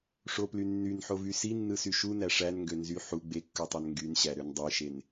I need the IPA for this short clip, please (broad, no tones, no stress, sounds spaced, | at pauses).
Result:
ʂ o p l y nː y n ħ o v y s i nː ɯ s y ʃ u n æ ʂ æ n ŋ ɡ ø n z y ħ u ɡ͡b e kː ɯ tˤ æ n ŋ ɡ y n ɕ æ ɾ ø n dˤ e ʃ e n